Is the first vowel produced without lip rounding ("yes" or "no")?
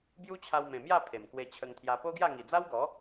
no